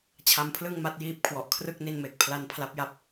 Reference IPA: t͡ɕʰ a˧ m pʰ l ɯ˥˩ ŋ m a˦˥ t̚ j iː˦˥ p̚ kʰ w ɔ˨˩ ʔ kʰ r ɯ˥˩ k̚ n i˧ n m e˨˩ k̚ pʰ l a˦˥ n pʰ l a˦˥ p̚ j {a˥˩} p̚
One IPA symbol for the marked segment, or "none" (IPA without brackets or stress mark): a˥˩